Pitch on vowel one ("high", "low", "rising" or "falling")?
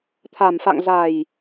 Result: low